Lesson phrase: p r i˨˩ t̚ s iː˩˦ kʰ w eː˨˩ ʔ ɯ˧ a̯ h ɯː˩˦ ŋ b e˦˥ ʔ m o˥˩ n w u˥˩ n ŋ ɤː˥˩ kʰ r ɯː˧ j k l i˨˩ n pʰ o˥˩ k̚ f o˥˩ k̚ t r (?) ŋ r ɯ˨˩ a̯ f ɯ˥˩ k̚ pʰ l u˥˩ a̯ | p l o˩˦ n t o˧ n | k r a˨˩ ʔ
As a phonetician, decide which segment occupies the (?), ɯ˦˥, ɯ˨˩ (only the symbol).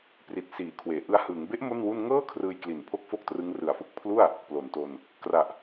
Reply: ɯ˦˥